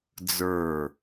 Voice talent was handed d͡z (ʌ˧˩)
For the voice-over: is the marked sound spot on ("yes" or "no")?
no